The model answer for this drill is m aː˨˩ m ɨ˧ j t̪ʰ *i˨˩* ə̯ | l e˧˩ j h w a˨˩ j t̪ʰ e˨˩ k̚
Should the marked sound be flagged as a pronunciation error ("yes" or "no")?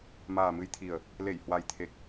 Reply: no